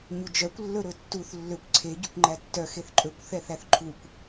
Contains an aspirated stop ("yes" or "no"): yes